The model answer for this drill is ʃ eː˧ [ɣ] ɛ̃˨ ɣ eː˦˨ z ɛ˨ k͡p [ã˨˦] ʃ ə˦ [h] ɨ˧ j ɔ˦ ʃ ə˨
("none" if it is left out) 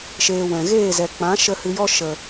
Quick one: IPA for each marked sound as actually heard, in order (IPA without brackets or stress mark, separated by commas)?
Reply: w, ã˨˦, h